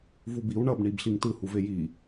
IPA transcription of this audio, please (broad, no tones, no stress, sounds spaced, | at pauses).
v u b i w ɳ ʌ b ɳ i b ɬ i ŋ t ɯ h u v e j i